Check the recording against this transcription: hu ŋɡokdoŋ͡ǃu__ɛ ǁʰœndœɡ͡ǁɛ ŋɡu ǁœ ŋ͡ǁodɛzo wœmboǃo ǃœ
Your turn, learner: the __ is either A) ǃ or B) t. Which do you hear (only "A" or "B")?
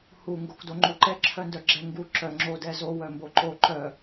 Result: A